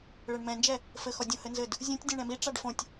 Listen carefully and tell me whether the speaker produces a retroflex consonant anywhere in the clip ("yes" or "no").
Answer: yes